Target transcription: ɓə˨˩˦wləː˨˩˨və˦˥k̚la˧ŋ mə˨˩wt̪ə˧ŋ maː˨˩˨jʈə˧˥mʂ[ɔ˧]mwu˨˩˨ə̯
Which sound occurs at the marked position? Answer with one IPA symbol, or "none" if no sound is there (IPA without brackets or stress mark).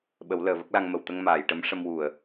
ə˧